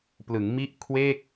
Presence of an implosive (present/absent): absent